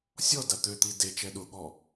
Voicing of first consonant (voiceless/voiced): voiceless